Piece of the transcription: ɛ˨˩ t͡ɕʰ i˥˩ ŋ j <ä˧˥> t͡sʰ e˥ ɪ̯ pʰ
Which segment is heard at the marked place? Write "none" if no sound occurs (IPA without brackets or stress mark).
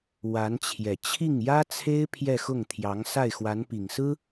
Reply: ä˥